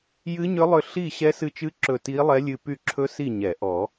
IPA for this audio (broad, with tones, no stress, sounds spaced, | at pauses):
j ɨ˦˥ ɲ ʏ˦˥ lˠ ʏ˦˨ ɬ i˦˨ ɕ ɛ˦˥ s ɨ˦˨ t͡ʃ ɨ˦˥ ǁ ɵ˦˨ t i˦˥ lˠ ɛ˦˥ lʲ ɨ˦˨ p y˦˨ ǁʰ ɵ˦˥ s i˦˨ ɲ ɛ˨˩˦ ʔ ɔ˨˩˦